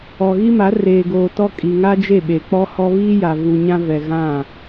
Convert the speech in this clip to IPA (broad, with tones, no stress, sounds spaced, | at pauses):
ɔ˨ ɣ i˦ m a˨˦ r eː˨ ɡ oː˨ t ɔ˦ kʼ i˨ ŋ a˦ d͡ʒ e˦˨ ɓ e˨ k͡p ɔ˦ h ɔ˦ β iː˦ j a˨ v u˨ ɲ ã˦ v ɛ˨ ɣ ã˦˨